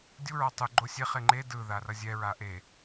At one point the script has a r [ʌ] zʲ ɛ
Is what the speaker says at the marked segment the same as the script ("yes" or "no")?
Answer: yes